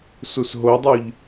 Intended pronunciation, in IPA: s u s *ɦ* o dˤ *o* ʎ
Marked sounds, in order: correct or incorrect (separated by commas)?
correct, incorrect